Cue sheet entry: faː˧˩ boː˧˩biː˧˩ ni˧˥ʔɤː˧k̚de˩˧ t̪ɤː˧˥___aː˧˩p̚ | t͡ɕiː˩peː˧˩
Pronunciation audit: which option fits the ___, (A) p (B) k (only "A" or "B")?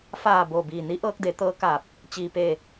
B